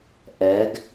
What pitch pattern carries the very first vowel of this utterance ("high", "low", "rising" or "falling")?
rising